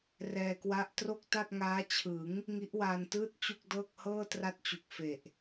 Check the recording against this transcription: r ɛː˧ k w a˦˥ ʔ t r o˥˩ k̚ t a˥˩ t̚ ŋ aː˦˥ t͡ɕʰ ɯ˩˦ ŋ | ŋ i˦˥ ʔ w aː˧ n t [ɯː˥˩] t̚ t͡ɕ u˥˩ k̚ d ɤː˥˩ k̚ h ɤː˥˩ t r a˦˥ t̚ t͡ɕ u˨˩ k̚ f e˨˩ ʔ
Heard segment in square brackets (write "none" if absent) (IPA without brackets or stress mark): ɯː˥˩